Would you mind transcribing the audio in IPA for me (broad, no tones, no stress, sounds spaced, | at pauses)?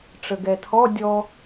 ʈ͡ʂ ə ɡ ɛ tʰ ɔ dʲ ɔ